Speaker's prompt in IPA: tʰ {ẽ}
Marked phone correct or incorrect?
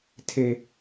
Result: incorrect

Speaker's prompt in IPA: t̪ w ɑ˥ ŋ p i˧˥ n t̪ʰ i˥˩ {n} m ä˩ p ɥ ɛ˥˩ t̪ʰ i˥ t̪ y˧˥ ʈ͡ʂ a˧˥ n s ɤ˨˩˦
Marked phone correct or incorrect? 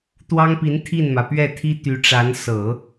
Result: correct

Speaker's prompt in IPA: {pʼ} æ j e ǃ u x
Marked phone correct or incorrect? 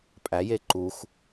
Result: correct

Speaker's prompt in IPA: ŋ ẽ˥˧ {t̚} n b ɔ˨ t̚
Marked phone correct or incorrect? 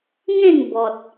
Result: incorrect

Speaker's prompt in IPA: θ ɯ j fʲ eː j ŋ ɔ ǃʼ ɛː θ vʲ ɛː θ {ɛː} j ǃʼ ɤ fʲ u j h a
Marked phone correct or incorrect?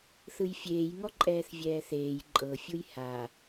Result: incorrect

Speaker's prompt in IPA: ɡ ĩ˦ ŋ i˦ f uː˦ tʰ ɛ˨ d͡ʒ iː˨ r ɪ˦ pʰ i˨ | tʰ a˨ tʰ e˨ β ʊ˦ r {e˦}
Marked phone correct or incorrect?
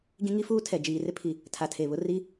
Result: incorrect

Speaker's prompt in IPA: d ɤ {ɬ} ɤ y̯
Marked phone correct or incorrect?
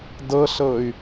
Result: correct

